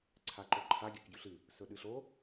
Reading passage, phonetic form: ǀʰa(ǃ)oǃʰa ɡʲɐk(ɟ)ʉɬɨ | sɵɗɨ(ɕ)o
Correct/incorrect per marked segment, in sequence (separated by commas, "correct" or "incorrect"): correct, correct, incorrect